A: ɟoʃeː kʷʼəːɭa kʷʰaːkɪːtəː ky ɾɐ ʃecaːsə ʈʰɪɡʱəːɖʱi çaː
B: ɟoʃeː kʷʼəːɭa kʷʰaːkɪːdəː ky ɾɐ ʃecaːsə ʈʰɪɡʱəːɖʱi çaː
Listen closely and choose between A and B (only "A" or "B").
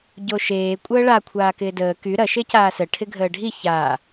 B